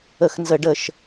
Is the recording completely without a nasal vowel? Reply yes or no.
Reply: yes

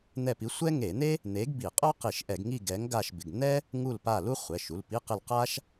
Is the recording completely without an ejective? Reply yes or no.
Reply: no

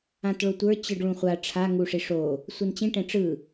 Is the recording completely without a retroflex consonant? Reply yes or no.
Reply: no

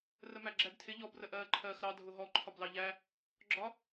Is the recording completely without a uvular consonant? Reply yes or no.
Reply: yes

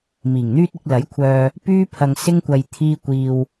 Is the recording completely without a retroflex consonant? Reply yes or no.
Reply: yes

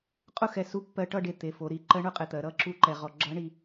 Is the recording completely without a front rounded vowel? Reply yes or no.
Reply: yes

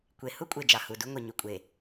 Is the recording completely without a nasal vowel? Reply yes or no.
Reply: yes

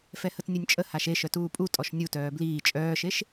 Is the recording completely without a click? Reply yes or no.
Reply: yes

